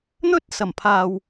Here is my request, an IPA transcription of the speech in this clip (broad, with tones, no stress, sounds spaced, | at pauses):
n̪ ɵ˥ t̚ s ɐ˨˩ m pʰ aː˨ w